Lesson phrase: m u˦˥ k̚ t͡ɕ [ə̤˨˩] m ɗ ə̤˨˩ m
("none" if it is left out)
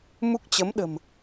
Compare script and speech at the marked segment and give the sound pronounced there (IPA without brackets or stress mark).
ə˨˦